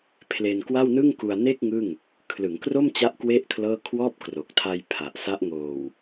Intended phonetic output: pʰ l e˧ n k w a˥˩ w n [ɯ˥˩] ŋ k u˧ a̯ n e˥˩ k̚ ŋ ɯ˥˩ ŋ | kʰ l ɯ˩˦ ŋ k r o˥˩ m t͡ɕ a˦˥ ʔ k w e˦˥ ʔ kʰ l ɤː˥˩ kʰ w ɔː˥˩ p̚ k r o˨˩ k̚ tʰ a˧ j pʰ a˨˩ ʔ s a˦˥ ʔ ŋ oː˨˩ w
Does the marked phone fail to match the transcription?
no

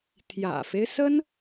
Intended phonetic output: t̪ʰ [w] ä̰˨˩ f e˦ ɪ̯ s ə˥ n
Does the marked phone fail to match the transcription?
yes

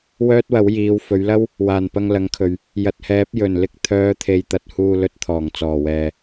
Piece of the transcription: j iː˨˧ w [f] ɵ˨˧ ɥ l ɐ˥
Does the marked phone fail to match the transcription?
no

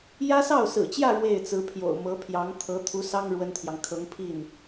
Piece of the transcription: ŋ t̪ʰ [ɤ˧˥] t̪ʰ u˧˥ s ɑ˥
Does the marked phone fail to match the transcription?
no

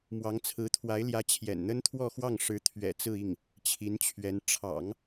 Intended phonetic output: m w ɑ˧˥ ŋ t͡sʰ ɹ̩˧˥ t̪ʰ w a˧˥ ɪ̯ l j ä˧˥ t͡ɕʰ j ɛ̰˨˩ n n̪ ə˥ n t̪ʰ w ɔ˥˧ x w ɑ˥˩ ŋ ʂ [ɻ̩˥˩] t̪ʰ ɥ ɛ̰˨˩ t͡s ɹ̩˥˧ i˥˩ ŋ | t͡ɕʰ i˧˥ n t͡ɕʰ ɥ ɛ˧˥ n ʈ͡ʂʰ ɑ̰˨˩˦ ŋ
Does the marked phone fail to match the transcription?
yes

